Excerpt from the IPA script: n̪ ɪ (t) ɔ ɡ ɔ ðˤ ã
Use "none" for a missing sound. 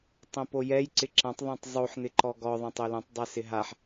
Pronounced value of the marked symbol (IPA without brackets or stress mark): ǃ